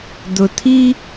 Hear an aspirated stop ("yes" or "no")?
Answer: yes